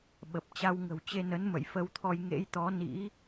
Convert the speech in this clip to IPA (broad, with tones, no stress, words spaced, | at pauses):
ɓə˨˩p̚ t͡ɕa˧wŋə̤˨˩wt͡ɕe˧ nə˨˦nmə̰˧˨j fə˧wt̪ʰɔ˧j ŋḛ˧˥jt̪ɔ˨˦nḭ˧˥